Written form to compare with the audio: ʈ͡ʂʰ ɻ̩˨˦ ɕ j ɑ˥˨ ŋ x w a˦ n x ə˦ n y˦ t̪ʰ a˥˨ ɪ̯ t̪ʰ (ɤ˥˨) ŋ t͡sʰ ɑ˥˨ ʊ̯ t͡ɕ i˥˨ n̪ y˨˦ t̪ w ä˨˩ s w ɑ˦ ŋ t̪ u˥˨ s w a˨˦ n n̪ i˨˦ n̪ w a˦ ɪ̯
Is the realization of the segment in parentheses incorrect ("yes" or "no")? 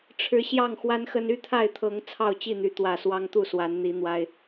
yes